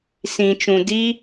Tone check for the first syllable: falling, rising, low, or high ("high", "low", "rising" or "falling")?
low